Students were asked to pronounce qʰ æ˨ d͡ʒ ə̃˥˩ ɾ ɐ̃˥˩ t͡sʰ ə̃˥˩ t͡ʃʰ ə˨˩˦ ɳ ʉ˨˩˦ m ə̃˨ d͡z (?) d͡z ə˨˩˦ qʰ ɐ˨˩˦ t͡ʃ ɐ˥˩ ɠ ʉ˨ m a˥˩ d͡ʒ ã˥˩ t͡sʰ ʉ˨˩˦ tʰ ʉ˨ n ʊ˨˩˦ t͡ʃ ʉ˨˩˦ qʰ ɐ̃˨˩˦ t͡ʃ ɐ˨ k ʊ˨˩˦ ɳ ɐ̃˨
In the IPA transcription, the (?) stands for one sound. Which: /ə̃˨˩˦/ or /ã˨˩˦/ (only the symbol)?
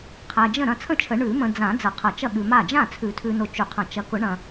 ã˨˩˦